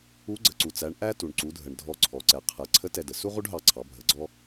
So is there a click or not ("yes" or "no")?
yes